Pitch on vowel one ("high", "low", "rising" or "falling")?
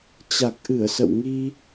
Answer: low